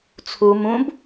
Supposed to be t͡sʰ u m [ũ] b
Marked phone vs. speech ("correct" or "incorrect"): correct